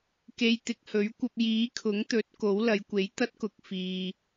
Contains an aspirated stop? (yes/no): yes